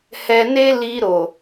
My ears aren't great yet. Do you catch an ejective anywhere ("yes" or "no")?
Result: no